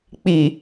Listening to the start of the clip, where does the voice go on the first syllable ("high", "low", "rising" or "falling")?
low